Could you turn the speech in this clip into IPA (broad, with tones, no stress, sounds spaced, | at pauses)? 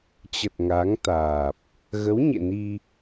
t͡ɕ ə˨˩ t̚ ŋ a˨˦ ŋ t̪ aː˨˩ p̚ | ɣ ə˨˦ w ɲ ḛ˧˨ n i˧